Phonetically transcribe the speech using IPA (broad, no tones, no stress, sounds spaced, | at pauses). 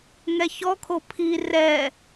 ŋ ɛ ç ɔ kʰ o pʰ i r ɛ